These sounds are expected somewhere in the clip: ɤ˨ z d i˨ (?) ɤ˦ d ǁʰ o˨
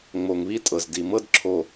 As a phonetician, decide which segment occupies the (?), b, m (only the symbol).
m